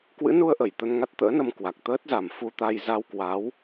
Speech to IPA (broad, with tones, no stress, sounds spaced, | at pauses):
k w ɨ̰˧˥ n u˧ ə̯ ʔ ə˧˩ j t̪ ə˧ n ŋ a˦˥ t̚ t̪ ə̰ː˧˥ n ə˧ m k w a˨˩ k̚ t̪ əː˦˥ t̚ z a˨˩ m f u˧ t̪ a˧ j z a˧ w k w a˨˦ w